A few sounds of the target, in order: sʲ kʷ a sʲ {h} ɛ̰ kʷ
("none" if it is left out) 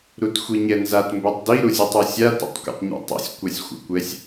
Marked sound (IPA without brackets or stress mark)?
xʷ